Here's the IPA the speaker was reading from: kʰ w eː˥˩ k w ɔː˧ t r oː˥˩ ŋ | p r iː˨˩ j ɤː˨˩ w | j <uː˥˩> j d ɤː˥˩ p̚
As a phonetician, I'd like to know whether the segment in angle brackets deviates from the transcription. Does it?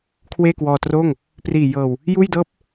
no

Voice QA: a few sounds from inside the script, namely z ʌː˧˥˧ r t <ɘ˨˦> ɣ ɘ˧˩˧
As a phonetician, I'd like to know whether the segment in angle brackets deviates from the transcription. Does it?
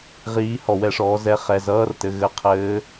yes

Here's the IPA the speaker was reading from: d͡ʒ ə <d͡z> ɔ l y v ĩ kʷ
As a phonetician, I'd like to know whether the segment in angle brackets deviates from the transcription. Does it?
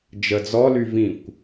no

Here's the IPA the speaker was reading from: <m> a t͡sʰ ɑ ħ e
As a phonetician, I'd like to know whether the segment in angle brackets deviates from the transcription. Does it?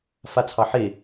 yes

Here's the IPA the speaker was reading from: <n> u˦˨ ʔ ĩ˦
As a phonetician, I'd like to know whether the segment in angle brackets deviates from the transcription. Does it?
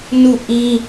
no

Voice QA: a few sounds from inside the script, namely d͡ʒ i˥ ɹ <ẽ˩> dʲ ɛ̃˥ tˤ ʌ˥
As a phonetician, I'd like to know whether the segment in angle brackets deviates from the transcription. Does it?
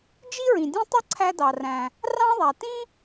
yes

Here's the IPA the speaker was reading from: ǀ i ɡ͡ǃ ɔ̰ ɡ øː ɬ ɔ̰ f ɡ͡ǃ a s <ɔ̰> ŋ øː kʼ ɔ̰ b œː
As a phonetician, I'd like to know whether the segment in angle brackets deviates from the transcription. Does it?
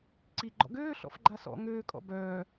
no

